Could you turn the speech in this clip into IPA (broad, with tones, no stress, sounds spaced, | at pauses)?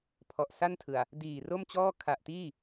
pʰ ɔ˨˩ ʔ s a˥˩ n tʰ ɯ˨˩ a̯ | d iː˨˩ r o˥˩ m t͡ɕ ɔː˥˩ kʰ a˨˩ ʔ t iː˥˩